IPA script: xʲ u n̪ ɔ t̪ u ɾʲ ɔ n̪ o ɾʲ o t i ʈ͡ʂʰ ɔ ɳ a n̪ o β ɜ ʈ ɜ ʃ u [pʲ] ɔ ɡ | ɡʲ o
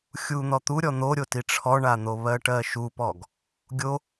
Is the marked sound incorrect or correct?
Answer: incorrect